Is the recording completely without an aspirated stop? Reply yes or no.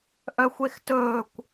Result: yes